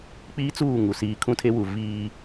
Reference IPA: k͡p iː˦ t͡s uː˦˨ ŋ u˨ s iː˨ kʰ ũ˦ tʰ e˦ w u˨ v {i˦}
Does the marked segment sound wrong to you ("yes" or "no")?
yes